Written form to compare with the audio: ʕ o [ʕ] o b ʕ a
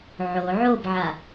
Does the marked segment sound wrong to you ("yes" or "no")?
no